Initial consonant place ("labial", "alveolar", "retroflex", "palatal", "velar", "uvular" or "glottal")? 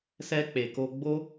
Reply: alveolar